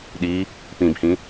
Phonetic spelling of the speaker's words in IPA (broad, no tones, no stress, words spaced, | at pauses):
ɗi | pĩbhĩ